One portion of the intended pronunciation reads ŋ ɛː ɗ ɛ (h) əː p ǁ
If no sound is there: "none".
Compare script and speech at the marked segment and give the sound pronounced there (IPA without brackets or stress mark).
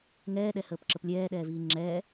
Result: h